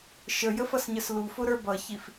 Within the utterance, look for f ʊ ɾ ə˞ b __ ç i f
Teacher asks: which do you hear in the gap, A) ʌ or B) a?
A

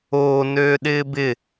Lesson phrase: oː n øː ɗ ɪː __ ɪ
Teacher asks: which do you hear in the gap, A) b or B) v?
A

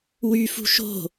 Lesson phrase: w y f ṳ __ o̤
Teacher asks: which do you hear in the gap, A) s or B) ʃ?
B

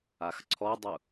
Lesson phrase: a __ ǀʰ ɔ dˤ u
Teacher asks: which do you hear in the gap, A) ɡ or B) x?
B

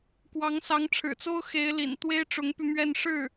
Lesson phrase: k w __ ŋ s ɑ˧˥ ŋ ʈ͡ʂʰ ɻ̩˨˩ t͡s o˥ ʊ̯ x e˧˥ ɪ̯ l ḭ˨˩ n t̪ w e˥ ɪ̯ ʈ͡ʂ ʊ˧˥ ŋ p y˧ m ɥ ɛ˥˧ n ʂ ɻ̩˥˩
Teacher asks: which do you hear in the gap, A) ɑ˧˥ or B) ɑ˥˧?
A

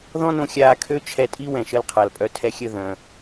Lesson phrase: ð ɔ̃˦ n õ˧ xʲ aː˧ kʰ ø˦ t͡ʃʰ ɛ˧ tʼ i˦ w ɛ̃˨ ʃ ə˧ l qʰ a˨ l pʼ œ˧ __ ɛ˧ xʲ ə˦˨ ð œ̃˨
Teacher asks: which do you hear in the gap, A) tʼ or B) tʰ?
B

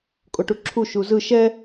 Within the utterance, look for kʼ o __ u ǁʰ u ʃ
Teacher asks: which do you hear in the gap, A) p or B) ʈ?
B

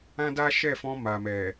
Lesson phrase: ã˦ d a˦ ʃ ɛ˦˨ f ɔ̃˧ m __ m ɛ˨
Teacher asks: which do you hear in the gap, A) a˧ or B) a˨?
B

